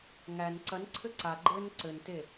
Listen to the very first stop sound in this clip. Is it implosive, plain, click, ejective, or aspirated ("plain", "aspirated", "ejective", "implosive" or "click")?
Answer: click